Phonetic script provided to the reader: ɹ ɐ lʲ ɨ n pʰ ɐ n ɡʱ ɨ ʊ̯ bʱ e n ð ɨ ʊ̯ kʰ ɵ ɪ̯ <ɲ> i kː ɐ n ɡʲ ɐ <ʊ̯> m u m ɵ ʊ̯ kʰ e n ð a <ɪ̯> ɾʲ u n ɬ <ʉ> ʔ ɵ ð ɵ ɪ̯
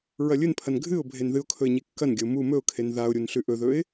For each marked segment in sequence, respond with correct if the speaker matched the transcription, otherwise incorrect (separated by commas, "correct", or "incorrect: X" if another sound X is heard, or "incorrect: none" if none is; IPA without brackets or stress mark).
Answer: correct, correct, incorrect: ʊ̯, correct